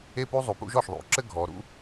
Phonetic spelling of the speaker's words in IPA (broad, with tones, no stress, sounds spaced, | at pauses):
e˥ p u˥ zˤ u˧ p ṵ˥ ʒ ɔ˥˩ ʃ ðˤ ṵ˩˥ ǁ ɘ˥ ɡʱ ɔ˩˥ ɾ ṵ˥